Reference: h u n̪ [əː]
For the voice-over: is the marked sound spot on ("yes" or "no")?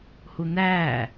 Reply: no